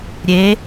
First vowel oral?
yes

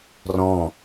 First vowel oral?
no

